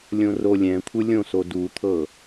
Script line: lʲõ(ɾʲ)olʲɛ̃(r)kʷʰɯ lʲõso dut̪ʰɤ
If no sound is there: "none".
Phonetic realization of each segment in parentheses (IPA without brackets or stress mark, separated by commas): r, none